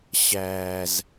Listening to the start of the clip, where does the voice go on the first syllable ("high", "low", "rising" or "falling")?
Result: low